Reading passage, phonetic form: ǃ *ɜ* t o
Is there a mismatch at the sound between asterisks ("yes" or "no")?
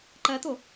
no